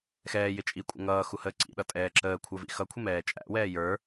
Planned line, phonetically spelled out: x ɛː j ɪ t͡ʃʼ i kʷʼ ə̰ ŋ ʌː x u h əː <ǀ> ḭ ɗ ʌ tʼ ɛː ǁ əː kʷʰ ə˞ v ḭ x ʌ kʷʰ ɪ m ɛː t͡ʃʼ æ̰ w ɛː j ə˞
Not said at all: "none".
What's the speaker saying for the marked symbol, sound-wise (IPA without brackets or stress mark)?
ǀ